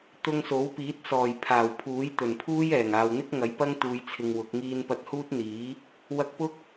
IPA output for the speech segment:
t̪ʊ˧ŋso˨˥wpiː˨˥t̚ sɔː˨˩j pʰaː˨˩wpʰuː˨˥jt̪ɵ˨˩n pʰuː˥jɛː˨˩ŋaː˨w n̪ɪ˥k̚ŋɐ˨˥jpɐ˥ŋ t̪uː˧jt͡sʰɪ˧ŋwʊ˨˥k̚ ŋiː˧npɐ˧t̚huː˥t̚ n̪iː˨˥ | wɐ˧k̚pʊ˥k̚

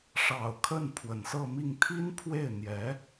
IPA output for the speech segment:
ʂɑ˨˩ʊ̯ kʰə˥˩n pʰwə˨˩nsɤ˥˧mi˥˩ŋ t̪ʰi˥npʰwe˥˩ɪ̯n̪jɛ˧˥

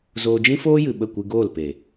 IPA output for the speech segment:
zoː˧d͡ʒĩ˦foː˦jɨ˨ ɓə˦˨kʷɨ˧ ɡoː˦˨lpe˨

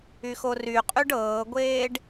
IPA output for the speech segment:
yxoryqʼyɖ ɤːɡʷeːɖ

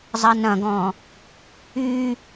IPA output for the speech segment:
zˤɐnɐ̃ɡɔ̃ | y

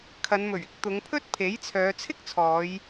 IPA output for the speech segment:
kʰɐ˨˧nmɵ˨˩ɥɪ˥k̚ t̪ʊ˨˧ŋpʰɵ˥t̚ pʰe˨˥jt͡sʰœː˨˧ t͡sʰɪ˥k̚t͡sʰɔː˨˧j

